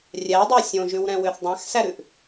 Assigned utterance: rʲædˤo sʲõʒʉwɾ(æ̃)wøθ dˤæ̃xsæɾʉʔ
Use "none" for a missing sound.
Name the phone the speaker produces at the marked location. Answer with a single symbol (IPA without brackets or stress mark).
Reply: ɛ̃